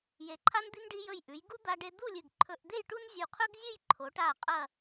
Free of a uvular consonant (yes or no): no